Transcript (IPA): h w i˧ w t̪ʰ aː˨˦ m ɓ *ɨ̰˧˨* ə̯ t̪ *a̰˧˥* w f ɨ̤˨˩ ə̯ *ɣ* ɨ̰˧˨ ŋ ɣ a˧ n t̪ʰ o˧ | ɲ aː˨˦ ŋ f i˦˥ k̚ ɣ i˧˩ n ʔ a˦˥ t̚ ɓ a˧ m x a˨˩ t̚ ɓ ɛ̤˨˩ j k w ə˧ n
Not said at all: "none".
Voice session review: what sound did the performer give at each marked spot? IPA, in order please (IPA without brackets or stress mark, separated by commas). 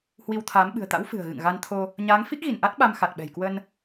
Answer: ɨ̤˨˩, a̰˧˥, ɣ